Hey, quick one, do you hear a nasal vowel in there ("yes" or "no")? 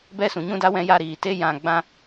yes